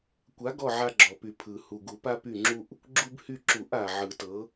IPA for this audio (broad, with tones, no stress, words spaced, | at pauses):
kʷa˨˥ɡɔ˦˨ ʕa˦ɡ͡ǁɔ˨˩py˨˩˦ pʰɯ˨˩ hu˨˩ɡu˨˩˦pa˦ py˦˨ŋ͡ǁu˦ʔ | ɡ͡ǁu˦bhy˦˨ ǁu˨˩˦ʔa˨˩ ʕɯ˨˩˦tɤ˨˥